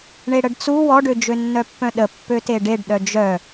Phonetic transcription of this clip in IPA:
ɳ e ɽ ə ɖ t͡s u w ɔ ɖ ø d͡ʒ ø nː œ pː œ̃ ɗ ə pː ø t e ɖ e ɖ ɗ œ d͡ʒ œ

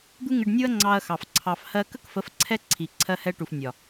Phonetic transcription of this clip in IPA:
d̪ u˦ ŋ ɪ˧ ɖ nʲ u˦ ɐ̯ ŋ͡ǀ ɑ˧ ɐ̯ x ɑ˨ f ǀʰ ɑ˧ f h ɜ˧ k ə˦ k f ə˨˦ f ǀʰ ɛ˦ ǀʰ i˨ ǀʰ ɜ˧ h ɛ˧ ʈ u˨ f nʲ ɒ˨

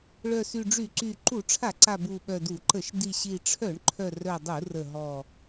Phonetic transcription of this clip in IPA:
ɭ œ˨˩ s y˨˩ ɖ͡ʐ y˧˩˧ ǀ y˨˩ ǃ u˧˩˧ ʈ͡ʂʰ a˧˩˧ ǀ a˨˩ b u˨˩ ɓ œ˨˩ d u˧˩˧ ǃ ə˧˩˧ ʃ d i˨˩ ɕ i˨˩ ʈ͡ʂʰ œ˧˩˧ ɳ ǃʰ œ˨˩ r œ˨˩ dˤ u˧˩˧ r ə˨˩ ɦ ɔ˨˩

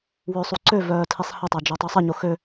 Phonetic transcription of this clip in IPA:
w ø sˤ u ǀ ø v œː tʰ i sˤ h ə tˤ a d͡ʒ o tˤ u sˤ ə ɲ o x ø

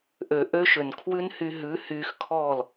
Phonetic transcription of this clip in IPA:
ʔ ø˨ ʔ ø˦ ʃ ø˨ n kʰ w ʉ˦ n h y˧ ɦ ʉ˨˦ h yː˧ x kʰ ɔː˦˨ l

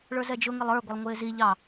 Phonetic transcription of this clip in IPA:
ɭ ə˞ z ɛ d͡ʒ ʊ ŋ ɪ lˠ ə˞ ɡʷ ɪ lˠ ŋʷ ɪː z i ʎ ɑ

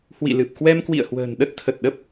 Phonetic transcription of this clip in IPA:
h w ḭ˧˨ l ɨ˨˩ p̚ k w ɛ˧ m k w ḭ˧˨ ə̯ h w ə̤ː˨˩ n ɗ ə˦˥ t̚ t̪ʰ ə˨˩ t̚ ɗ ə˦˥ p̚

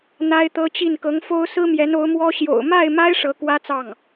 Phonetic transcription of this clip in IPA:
n̪ a˥ ɪ̯ t̪ ɤ˥ t͡ɕ i˥˩ n k ɤ˧˥ ŋ f o˥ ʊ̯ s ɹ̩˥ m j ɛ˧˥ n o˧˥ ʊ̯ m w ɔ˥ ɕ j o̰˨˩ ʊ̯ m a˥˩ ɪ̯ m a˥ ɪ̯ ʂ ɤ˧˥ k w ä˥ t͡s ɑ˥˩ ŋ

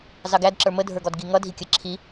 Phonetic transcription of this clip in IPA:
z ɑ ɡ æ d ǁ ə˞ m ə dʱ ə˞ ɡ ɔ d ɡ i ŋ ʌ dʱ i kʲ ə ǁʰ i

